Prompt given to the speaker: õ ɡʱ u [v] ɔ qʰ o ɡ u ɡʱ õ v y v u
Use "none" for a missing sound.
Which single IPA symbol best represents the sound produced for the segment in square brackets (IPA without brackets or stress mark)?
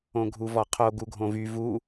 v